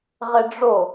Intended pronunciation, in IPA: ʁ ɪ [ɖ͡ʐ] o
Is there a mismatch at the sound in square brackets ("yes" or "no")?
no